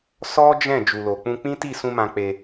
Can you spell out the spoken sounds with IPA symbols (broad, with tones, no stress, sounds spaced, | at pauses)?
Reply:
s ɔ˦ d͡ʒ ɛ̃˦˨ d͡ʒ u˨ l o˨ k͡p ũ˧ k͡p ĩ˦ t i˦˨ s ũ˧ m ã˧ k͡p e˧